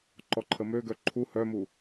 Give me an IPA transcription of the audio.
ǃ ɔ ǃʰ ə m ø ɡ œ ǃʰ u h œ m u

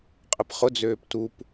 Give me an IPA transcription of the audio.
qʼ ə p χ ʊ d͡z øː p t u p

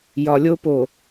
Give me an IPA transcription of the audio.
j ɒ˨ lʲ o˦ p o˨

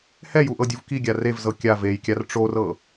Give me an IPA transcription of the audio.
h ɛ j u ʔ ɤ dʲ u v k i ɡʲ a r e v z ɤ kʲ a v e j kʲ a r ʈ͡ʂ o r ɤ

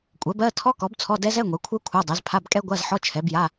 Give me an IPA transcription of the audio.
kʷʼ ɜ˩˥ b ɜ˧˥˧ tʰ ɔ˦˥ k ɔ˩˥ b t͡sʰ ɔ˧˥˧ d ɛ˦˥ z ɛ˧˥˧ ŋʷ ɛ˩˥ kʷʰ ɜ˦˥ kʷʰ a˧˥˧ dˤ ɛ˩˥ z pʰ a˧˥˧ b kʼ ɛ˦˥ ɡʷ a˧˥˧ z ħ ɔ˧˥˧ t͡ʃʰ ɛ˩˥ b j a˧˥˧

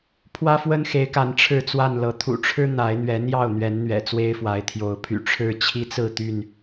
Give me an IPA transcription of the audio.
pʰ w ä˦ f w ə˦ n x e˨˦ ɪ̯ k a˨˦ n ʈ͡ʂʰ ɻ̩˥˨ t͡s w a˥˨ n l ɤ˨˦ t̪ʰ ṵ˨˩ ʈ͡ʂʰ ɻ̩˦ n̪ a˨˦ ɪ̯ n̪ ɥ ɛ˨˦ n̪ j ɑ˥˨ ʊ̯ n̪ ɥ ɛ˨˦ n n̪ ɥ ɛ̰˨˩ t͡s w e˦ ɪ̯ f w a˨˦ ɪ̯ t̪ʰ j o˨˦ ʊ̯ pʰ y̰˨˩ ʈ͡ʂʰ ɻ̩˥˨ t͡ɕʰ i˦ t͡s ɹ̩˥˨ t̪ y˥˨ n

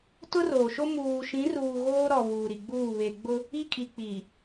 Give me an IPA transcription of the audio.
t ʊ˦ r oː˨ ʃ o˦ m uː˨ ʃ ĩ˨˦ r uː˨ ɣ oː˦ ɾ ɔ˨ β uː˨ ɾ i˨ ɡ͡b uː˦˨ β e˨ ɡ͡b ʊ˦ | i˦ kʼ i˨ k͡p i˨

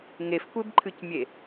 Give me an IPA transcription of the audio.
ŋ e f kʷ e b ǃʰ ɨ c mʲ e

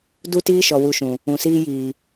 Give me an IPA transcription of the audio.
d u˦ t iː˦ ʃ ɔ˨ w u˧ ʃ ũ˨ | ũ˨ s iː˦ j iː˨

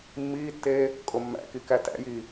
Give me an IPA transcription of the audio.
mː iː tː eː | kʼ o mː æ̰ k i k æ t æ̰ j iː

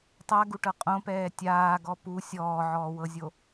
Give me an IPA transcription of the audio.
tˤ a ɡ u ʈ ɤ qʼ õ p ɛː tʲ aː ɡ ɔ p u sʲ ɔː ʕ ɔː w ɤ zʲ o

